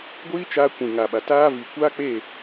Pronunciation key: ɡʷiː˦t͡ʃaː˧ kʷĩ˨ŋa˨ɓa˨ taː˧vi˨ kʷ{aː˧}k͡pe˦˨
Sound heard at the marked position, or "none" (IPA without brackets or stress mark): aː˦